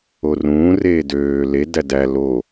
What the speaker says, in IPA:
o r ũː r eː d øː l e d æ d æ l o

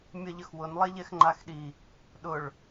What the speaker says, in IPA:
mʲ ɐ ʎ ə x w ʊ n lˠ ɛ ʎ ɛ x ŋ͡ǃ a x ɗ i | ɗ ʊ ɭ

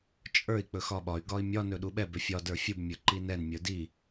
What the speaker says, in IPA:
t͡ʃʼ ə˞ i̯ k͡p ɵ x ɒ ɓ ɒ y̯ ɡ ɒ i̯ mʲ ɒ n ɵ ɗ u ɓ ɛ b ʏ fʲ ɒ d ə˞ fʲ u b mʲ ə˞ ǃ i n ɛ n mʲ ə˞ d i

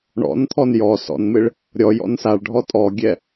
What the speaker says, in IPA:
ɳ ɔ̰ n t̪ʰ ɔ n j ɔ s ɔ̰ n m ɪ ɭ | ɾʲ ɔ j ɔ̰ n s a ɭ ɖʱ ɔ tʼ ɔ ɡʲ ɛ

